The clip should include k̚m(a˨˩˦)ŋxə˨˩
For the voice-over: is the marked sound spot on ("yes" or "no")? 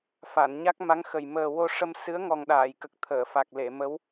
no